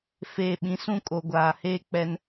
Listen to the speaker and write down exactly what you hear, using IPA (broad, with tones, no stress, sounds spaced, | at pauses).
f eː˨ ɓ ĩ˨ s ũ˦ kʼ o˨ ɡʷ aː˨ h eː˦ k͡p ɛ˦ n